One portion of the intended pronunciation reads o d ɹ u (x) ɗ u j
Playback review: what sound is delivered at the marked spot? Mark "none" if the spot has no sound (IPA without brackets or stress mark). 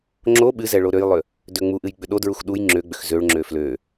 x